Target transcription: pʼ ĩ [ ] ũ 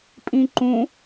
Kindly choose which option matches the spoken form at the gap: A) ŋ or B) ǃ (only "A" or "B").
B